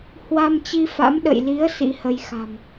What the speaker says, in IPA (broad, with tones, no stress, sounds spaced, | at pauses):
h w a˧ m t͡ɕ i˧ f a̰˧˥ m ɗ ə̰˧˨ j l i˨˦ ə̯ s ḭ˧˥ h ə˧ j x a̤˨˩ m